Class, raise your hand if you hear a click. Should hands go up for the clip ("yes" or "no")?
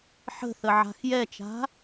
no